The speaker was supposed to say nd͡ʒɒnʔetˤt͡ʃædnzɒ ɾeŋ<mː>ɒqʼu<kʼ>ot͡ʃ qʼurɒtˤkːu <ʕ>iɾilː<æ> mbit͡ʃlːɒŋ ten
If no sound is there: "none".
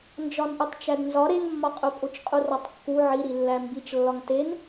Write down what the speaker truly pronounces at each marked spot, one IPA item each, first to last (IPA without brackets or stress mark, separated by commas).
mː, kʼ, ʕ, æ